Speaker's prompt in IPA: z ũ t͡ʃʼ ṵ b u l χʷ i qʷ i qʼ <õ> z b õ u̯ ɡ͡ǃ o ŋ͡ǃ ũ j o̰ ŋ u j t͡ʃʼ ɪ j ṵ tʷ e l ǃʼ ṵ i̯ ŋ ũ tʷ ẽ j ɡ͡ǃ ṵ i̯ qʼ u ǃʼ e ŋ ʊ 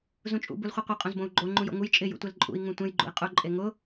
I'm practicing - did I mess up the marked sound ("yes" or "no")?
no